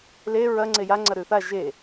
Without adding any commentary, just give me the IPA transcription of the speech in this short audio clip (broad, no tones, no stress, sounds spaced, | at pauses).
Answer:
l e ɹ ɐ ŋ͡ǀ e j a ŋ͡ǀ ɐ ɾ ʉ θ a ʒ e